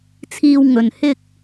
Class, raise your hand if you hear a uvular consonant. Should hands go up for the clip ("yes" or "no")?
no